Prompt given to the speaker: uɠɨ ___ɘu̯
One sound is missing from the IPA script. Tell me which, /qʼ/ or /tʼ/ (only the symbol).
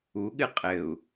qʼ